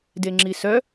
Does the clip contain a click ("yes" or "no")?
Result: yes